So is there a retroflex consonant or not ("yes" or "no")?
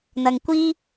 no